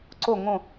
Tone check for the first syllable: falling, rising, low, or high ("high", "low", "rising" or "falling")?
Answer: falling